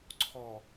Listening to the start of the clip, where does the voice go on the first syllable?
low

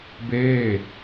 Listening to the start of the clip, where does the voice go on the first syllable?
falling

